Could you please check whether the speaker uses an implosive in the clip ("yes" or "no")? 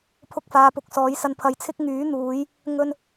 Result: no